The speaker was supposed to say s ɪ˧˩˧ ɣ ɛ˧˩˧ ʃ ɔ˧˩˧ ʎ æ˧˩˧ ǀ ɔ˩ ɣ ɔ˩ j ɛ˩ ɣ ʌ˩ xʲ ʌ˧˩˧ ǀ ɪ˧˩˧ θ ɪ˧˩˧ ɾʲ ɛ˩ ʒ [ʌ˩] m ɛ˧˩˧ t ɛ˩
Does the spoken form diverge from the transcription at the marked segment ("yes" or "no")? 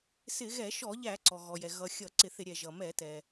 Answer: no